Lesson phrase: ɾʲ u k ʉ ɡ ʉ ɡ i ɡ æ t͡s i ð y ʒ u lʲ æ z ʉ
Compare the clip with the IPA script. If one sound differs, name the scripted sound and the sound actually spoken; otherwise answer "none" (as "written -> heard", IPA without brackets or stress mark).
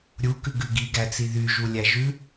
z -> ʒ